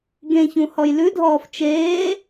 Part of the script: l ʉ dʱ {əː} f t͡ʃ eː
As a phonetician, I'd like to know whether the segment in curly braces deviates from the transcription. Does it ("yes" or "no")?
yes